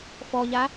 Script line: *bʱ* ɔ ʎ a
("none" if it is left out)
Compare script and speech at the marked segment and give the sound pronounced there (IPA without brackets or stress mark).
f